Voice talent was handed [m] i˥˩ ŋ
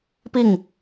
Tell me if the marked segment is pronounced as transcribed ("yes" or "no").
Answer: no